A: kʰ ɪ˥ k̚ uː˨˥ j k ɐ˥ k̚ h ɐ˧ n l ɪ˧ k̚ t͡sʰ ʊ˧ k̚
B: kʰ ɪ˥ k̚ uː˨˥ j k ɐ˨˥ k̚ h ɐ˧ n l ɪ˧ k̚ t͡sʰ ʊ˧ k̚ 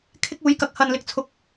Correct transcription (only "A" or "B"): B